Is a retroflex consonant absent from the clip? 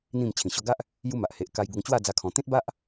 yes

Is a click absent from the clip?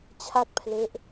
yes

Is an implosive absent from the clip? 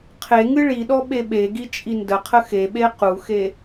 no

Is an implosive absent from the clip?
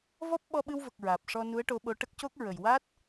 no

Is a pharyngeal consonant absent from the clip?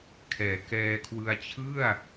yes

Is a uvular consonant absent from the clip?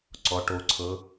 yes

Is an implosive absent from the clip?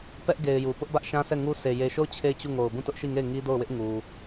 yes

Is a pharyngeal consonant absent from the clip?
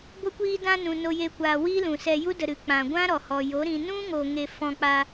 yes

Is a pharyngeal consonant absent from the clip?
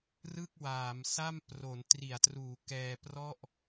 yes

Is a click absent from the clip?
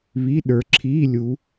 no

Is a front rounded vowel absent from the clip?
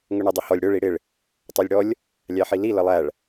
yes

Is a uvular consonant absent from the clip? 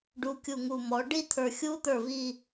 yes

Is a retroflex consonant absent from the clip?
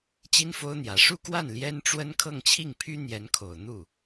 no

